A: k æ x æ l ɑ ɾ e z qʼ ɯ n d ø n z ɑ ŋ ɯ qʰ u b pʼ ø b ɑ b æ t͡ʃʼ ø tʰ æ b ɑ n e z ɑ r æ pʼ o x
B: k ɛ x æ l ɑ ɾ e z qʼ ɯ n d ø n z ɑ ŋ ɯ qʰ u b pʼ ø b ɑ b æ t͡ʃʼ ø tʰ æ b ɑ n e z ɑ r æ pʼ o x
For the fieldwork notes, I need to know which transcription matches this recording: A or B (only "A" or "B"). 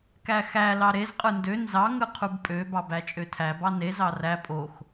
A